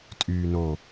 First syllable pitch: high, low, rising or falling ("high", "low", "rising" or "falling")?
low